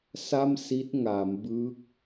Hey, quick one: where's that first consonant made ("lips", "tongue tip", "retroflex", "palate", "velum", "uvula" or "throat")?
tongue tip